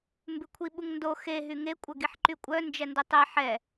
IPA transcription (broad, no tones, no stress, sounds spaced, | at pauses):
m b ʉ kʷʰ i ɓ u ŋ n d o x e ɦ y ŋ e kʷʼ œ ɡ i ħ ǃ y kʷʼ œ n d͡ʒ ɛ n d u tˤ e ħ ɛ